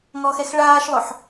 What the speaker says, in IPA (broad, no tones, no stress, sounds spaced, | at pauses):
ŋ ɔ x ɛ x ɭ aː ʃ lˠ ʊ ħ